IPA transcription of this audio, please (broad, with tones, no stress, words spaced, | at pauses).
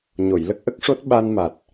ɲo˨˩˨jlə˦˥k̚ʔə˦˥k̚ʂo˦˥t̚ ɓa˧nma˨˩t̚